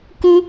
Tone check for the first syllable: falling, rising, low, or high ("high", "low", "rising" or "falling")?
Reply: high